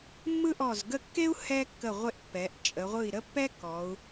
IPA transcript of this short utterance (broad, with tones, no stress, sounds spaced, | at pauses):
mː ɯ˥ ʔ ɔ˧˩ z ɡ ə˥˧ kː e˥ u̯ h ɛ˥ kː ə˧˩ ʁʷ e˧ ʔ pː ɛ˩˧ ʔ t͡ʃʼ ə˩˧ ʁʷ ɯ˧˩ i̯ ɾ ə˥ pː ɛ˥ k ɔ˩˧ u̯